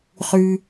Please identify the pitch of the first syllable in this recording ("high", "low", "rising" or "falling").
low